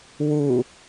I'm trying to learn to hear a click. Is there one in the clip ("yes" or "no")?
no